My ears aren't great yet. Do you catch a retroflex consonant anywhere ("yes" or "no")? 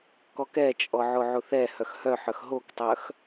no